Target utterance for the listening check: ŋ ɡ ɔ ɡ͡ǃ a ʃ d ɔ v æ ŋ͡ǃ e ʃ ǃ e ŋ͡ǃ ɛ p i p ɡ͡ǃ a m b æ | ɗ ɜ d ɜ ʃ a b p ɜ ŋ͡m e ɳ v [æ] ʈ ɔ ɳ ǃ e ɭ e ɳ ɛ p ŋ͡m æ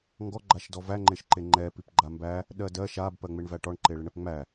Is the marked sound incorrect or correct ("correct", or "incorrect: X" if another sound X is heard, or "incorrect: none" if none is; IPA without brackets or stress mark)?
correct